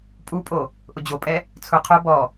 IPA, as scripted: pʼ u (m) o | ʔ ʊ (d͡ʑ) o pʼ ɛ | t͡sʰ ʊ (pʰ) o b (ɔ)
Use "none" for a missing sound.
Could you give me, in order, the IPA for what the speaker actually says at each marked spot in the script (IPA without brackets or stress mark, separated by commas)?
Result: pʼ, d͡ʑ, qʰ, ɔ